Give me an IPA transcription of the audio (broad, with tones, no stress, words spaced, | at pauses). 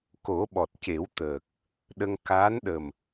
ko˨˩˦ɓɔ˨˩t̚ce˨˩˦wt̪əː˨˩k̚ | ɗə˧ŋ kaː˧˥nɗə˨˩m